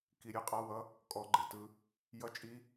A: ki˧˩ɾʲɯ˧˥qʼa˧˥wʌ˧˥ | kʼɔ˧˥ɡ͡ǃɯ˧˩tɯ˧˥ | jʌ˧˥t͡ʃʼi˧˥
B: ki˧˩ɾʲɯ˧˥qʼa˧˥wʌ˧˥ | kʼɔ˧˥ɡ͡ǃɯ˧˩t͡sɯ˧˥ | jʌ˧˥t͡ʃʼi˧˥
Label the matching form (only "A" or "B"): A